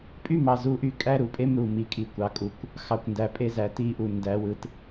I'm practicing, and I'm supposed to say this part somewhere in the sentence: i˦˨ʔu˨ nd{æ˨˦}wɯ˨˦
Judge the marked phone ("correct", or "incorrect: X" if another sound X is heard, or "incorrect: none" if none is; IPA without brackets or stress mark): correct